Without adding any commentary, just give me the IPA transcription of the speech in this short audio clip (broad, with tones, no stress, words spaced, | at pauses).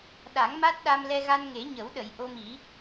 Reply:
ɗa˨˩˦ŋma˦˥t̚ ɗa˧mlɛ˧ɣa˧n ŋe˨˩˦ɲə˨˩˦wɗə˨˩˨j ʔo˧mi˨˩˦